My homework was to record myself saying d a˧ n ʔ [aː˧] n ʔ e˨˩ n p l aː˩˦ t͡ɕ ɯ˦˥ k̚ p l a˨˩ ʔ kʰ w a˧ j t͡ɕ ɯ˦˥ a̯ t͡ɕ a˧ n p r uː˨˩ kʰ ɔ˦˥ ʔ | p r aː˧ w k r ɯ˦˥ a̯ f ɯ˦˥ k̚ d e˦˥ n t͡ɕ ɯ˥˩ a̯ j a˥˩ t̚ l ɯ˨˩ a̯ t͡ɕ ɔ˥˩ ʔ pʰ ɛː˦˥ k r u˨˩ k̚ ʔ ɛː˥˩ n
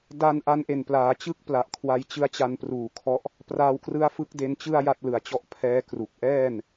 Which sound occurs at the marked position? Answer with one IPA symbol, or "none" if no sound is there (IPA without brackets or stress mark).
a˧